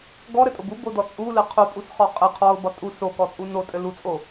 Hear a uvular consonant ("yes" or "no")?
yes